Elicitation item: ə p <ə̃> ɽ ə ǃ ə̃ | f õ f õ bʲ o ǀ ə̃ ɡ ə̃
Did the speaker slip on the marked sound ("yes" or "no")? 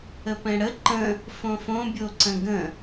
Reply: yes